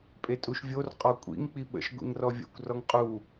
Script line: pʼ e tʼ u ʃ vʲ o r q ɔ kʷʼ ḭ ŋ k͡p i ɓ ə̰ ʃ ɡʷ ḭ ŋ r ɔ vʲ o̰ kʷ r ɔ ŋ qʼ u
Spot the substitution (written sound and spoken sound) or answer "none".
q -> qʼ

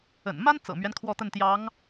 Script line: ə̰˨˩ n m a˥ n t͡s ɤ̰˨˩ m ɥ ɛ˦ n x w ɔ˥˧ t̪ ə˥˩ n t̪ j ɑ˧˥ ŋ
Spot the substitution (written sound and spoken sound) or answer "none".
x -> kʰ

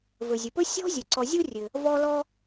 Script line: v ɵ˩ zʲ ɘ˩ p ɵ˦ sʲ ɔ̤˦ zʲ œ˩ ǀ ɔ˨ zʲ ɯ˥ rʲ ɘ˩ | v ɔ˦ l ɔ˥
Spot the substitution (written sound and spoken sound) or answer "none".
ɯ˥ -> u˥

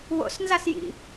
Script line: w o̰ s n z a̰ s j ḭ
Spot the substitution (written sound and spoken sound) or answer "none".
a̰ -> a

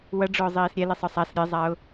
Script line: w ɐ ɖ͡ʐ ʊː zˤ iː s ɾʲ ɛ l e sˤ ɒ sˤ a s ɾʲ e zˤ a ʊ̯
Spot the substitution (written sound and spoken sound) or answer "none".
none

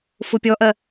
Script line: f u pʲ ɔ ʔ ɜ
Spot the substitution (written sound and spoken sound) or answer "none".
none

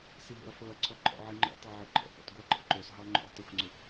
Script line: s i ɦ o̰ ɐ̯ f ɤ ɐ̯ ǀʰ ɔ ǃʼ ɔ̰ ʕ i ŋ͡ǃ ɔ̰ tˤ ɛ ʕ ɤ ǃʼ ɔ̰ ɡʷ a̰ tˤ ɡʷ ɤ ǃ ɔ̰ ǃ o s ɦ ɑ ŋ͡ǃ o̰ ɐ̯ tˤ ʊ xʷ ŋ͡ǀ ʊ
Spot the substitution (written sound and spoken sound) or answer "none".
none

